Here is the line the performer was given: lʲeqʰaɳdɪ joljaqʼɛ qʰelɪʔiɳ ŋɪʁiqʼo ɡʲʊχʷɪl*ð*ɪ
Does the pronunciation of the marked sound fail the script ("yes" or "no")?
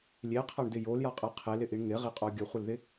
no